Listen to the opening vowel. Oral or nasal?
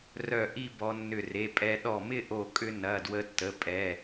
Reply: oral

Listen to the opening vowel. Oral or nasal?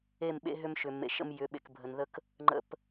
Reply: oral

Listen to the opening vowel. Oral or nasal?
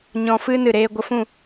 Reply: nasal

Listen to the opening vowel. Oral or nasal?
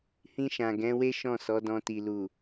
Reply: nasal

